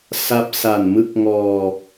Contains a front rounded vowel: no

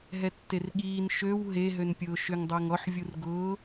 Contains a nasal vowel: no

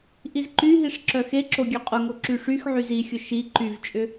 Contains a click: yes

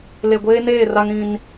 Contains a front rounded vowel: no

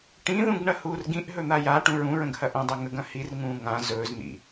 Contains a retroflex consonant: yes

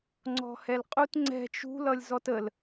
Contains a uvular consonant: yes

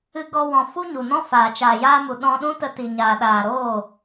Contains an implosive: yes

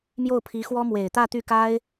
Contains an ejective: no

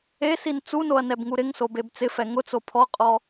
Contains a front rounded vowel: no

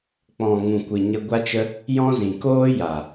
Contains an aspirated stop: no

